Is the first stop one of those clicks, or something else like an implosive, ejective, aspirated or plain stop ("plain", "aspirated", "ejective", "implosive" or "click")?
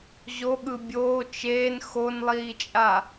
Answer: implosive